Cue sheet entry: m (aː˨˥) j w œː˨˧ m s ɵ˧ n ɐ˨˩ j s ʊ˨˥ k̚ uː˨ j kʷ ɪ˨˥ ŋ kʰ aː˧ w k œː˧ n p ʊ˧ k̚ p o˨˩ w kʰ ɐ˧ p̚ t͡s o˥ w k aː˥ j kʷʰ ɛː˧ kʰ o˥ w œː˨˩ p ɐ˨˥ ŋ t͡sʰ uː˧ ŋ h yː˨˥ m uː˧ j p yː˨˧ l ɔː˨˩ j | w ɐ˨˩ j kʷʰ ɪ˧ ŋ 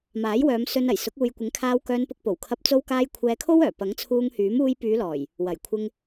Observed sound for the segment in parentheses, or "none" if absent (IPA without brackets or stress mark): aː˨˥